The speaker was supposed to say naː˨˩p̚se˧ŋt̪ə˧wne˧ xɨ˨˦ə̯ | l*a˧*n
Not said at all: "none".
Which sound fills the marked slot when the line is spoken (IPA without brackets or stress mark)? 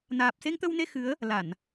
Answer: a˧˩˨